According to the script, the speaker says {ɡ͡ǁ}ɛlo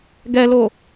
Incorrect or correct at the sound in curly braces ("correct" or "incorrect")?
incorrect